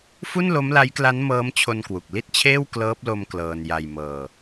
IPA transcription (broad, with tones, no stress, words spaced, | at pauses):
fu˥˩nlo˦˥mla˦˥jkla˦˥n mɤː˦˥mt͡ɕʰo˧nkwu˨˩k̚ li˥˩t̚t͡ɕʰeː˥˩w klɤː˦˥p̚lo˧m klɤː˧n ja˧jmɤː˧